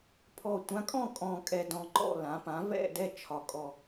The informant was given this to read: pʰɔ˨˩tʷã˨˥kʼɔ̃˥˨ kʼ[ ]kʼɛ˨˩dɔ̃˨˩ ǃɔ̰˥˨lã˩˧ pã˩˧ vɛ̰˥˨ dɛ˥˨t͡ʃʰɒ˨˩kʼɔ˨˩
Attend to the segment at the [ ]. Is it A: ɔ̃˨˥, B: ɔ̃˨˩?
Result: B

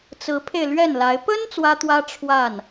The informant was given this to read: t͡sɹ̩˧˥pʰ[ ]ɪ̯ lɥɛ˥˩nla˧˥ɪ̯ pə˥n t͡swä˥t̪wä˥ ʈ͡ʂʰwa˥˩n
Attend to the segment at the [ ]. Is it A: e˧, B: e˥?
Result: A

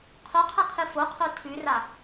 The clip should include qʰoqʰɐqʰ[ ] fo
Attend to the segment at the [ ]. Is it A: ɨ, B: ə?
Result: A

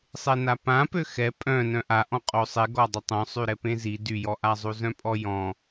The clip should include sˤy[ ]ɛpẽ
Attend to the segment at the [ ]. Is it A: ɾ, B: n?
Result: A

